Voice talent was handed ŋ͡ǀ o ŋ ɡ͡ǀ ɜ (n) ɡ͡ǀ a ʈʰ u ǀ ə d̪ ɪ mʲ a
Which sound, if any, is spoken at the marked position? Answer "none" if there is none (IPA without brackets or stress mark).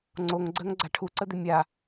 ŋ